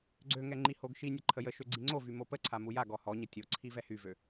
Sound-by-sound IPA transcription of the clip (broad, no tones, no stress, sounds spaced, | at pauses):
ɡ͡ǀ ø ŋ ɛ ŋ͡ǃ i h o ɡ ʃ i nʲ ə ǃʰ ə j ə ʃ ø ɡ͡ǀ i ŋ͡ǀ o v y m o p ə ǀʰ a m u j a ɡ ɔ h ɔ ɲ ə tʲ o ǀʰ i v ɛ h y v ø